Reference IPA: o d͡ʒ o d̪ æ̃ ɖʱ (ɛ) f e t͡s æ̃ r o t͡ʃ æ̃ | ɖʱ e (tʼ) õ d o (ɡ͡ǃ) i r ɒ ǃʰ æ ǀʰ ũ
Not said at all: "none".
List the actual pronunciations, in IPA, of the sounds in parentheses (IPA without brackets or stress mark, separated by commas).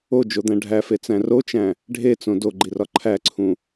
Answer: æ, t͡s, ɡ͡ǃ